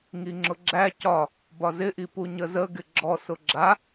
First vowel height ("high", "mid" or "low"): high